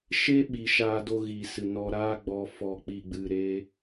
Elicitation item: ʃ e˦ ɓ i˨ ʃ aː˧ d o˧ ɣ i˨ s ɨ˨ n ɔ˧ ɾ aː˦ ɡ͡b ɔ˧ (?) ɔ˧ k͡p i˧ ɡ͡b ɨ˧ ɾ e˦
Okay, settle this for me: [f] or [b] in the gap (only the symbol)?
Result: f